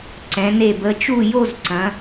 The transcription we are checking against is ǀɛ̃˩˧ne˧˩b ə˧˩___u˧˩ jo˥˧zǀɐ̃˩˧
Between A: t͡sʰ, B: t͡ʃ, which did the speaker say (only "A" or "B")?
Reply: B